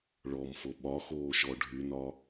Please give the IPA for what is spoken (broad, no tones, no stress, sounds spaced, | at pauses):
ɭ ɔ m f o ɓ ɒ x oː ʃ ɔ ɖʱ y n ɒ